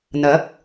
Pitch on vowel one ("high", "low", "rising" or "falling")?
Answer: rising